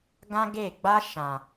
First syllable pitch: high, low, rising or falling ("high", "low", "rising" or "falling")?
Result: high